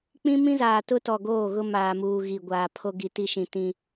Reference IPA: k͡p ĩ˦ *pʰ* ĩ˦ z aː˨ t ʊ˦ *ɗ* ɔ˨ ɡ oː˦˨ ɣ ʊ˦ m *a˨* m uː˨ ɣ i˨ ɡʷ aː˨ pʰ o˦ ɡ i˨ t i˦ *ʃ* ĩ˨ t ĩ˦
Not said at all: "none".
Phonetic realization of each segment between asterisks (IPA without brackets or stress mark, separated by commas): m, t, aː˨, ʃ